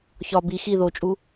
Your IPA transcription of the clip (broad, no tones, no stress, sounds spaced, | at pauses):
ç ɒ b i x i ð o t͡ʃʼ u